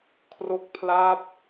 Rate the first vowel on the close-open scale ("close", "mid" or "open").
mid